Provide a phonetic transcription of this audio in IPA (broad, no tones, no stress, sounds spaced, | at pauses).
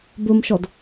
b ɵ m ʃ ɔ d